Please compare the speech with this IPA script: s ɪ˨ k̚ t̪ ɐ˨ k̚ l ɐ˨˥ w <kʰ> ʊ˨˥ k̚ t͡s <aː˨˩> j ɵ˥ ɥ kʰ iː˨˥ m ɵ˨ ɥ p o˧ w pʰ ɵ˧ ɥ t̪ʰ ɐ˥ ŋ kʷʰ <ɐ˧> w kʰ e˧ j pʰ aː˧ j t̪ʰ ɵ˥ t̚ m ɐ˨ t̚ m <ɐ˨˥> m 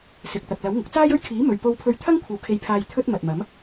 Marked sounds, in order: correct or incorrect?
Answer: incorrect, incorrect, incorrect, correct

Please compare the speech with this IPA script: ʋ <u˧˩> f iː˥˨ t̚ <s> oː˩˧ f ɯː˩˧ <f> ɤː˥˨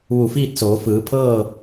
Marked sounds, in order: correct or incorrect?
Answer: correct, correct, incorrect

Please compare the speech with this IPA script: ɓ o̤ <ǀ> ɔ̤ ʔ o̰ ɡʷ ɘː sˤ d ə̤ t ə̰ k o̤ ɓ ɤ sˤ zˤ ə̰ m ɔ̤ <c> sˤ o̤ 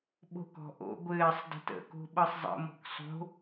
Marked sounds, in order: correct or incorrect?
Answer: incorrect, incorrect

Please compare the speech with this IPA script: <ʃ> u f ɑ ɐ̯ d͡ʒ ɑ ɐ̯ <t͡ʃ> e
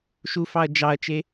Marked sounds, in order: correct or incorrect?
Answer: correct, correct

